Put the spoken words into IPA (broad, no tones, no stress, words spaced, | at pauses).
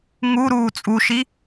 ŋuɾuː t͡sʼuʃi